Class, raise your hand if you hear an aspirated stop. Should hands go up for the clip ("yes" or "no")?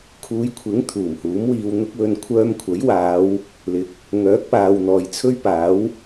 yes